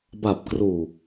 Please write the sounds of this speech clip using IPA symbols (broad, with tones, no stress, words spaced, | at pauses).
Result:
ba˨˩p̚kruː˨˩